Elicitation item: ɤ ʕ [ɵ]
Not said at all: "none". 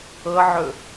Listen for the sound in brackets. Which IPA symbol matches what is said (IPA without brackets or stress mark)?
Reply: ɵ